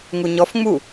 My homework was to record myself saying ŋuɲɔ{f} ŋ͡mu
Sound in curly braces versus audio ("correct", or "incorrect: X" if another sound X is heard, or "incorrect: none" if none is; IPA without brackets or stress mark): correct